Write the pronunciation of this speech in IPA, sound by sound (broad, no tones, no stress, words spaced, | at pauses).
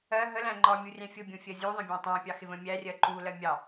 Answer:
ɜ ɦəlæ̃ ŋ͡ǃɒmʲurʲæ̃ fʲʊbʲũfʲɜ zʲuðˤə̃bʲɑ̃ tˤæ̃pʲɑxɪvə̃ mʲærʲɜ ǃulɜ mʲɑ